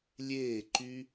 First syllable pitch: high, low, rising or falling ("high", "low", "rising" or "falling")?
falling